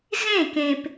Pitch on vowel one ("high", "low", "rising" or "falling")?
falling